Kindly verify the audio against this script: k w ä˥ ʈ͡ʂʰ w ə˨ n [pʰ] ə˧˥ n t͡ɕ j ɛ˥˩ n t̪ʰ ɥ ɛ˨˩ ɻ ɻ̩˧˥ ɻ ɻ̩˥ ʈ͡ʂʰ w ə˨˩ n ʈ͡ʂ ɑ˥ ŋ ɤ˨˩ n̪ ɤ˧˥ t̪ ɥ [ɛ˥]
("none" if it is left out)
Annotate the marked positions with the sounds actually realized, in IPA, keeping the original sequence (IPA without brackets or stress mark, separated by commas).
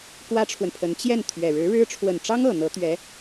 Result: pʰ, ɛ˧˥